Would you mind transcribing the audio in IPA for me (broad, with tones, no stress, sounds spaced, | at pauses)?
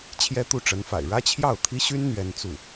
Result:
t͡ɕʰ j ɛ˥ t̪ u˥˩ ʈ͡ʂ ə˧˥ n f a̰˨˩ ɪ̯ ɻ ä˥ t͡ɕʰ j ɑ˥˩ ʊ̯ t̪ʰ i˥ ɕ y˥ n n̪ ɥ ɛ˥ n t͡s u˥˩